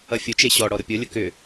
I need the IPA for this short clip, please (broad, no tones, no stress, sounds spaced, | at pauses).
ʌ fʲ ʊ t͡ʃ e ɕ ɔ ɽ ɔ ɾ ʊ pʲ o lʲ ʊ k ʏ